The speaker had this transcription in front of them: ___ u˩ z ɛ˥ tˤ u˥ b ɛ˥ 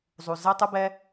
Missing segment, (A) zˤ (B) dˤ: A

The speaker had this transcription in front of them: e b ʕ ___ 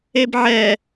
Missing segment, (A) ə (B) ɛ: B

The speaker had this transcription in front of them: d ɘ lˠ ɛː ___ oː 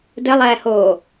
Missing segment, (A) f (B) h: B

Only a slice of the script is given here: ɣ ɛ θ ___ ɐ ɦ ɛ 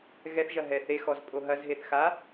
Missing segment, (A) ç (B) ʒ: B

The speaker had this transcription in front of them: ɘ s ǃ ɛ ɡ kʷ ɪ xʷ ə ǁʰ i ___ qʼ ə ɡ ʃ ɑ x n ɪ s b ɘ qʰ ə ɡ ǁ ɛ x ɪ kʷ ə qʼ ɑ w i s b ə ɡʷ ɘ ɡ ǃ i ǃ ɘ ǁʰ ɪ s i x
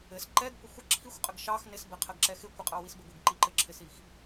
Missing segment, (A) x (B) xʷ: B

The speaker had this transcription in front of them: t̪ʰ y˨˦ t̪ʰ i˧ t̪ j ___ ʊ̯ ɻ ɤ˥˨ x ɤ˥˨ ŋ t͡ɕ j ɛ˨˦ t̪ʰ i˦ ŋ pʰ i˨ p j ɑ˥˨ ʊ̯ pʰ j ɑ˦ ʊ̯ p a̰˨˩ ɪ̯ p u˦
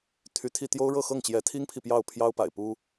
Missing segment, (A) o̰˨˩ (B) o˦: B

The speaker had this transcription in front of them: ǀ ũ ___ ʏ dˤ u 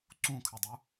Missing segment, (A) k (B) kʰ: B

